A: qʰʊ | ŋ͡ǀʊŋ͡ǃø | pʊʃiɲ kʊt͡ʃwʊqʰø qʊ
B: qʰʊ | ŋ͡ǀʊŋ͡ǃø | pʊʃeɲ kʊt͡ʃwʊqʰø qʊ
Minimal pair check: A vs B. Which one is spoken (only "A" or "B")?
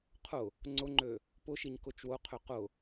A